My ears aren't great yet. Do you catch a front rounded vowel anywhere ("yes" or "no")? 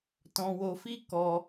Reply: no